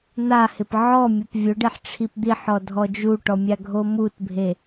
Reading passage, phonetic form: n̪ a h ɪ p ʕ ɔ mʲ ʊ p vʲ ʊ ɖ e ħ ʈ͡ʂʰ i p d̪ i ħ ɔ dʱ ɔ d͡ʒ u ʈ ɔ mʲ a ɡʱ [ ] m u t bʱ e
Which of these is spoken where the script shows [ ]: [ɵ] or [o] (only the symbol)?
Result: o